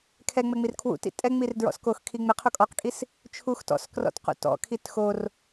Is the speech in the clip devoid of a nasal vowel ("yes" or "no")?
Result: yes